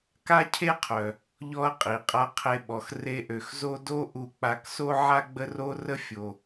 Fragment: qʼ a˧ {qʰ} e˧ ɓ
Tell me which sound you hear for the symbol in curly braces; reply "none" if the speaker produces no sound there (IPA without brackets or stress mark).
qʰ